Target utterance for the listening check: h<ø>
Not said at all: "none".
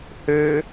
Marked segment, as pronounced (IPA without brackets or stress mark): ø